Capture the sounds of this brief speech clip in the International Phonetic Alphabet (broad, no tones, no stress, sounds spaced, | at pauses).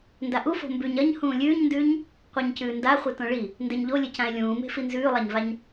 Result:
n d a ʔ u f o̤ m b ʉ ɲ ɐ ɲ h ũː lʲ ʉː ɲ n d ʉː ɲ | qʷ a ɲ c ʉː n d a χʷ ɨ t õ ɭ i | n d e ɲ ʎ o lʲ ɨ c ã e̯ lʲ ũː m e̤ f i n z ʉː lˠ a ɲ v a ɲ